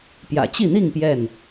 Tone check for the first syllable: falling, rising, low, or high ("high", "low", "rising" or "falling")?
low